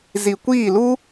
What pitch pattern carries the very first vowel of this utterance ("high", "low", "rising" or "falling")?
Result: low